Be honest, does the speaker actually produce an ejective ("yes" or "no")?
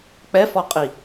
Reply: yes